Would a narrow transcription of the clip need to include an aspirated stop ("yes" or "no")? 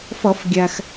no